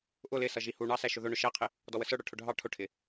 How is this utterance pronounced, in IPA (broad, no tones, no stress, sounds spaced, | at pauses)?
ʔ ʊ l ɪ s ʌ ʒ i h u ɳ ɑ s æ ʃ ʊ ð ʊ ɳ ʊ ʃ æ qʰ ɪ | d ɔ w ə s ə˞ ɽ ə˞ ʈʰ ʊ ɖʱ ɑ ʈʰ ʊ ʈʰ ɪ